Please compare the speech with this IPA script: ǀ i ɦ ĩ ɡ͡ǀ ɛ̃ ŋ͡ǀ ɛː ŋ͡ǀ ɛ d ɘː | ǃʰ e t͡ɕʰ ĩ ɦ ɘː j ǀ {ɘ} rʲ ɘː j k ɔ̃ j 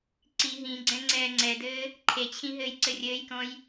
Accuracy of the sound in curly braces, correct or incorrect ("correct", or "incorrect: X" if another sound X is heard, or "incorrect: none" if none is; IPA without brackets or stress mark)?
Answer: correct